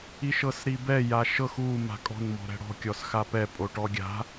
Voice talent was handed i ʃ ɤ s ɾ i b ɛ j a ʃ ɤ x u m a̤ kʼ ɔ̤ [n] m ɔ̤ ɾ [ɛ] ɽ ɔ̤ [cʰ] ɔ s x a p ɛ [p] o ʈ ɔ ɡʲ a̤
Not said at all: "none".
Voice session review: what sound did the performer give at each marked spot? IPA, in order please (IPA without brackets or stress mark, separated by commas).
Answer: n, ɛ̤, kʲ, pʼ